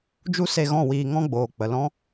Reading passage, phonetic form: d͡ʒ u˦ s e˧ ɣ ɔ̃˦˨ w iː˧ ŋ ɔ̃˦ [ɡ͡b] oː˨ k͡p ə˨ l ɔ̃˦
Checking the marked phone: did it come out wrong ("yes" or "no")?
no